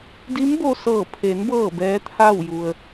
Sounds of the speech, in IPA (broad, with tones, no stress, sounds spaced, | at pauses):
d i˧˥ m b o˧ s ɤː˧˩ pʰ e˩˧ n b ɤː˥˨ b ɛː˧˥ t̪ʰ aː˥˨ w j u˧ ə̯